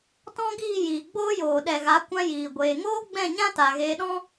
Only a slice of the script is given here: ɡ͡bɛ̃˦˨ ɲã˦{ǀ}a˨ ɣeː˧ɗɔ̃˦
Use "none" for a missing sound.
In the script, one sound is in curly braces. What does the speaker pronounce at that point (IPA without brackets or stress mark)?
t